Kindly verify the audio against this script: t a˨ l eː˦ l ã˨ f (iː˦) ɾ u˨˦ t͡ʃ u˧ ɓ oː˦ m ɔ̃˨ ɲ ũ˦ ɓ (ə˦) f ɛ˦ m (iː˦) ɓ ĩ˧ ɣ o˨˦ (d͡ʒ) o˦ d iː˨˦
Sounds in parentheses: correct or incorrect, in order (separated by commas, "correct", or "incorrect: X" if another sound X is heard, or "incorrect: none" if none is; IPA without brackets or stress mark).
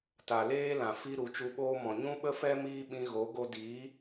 incorrect: i˦, correct, correct, incorrect: ɡ